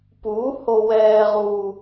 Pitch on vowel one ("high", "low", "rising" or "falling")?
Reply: rising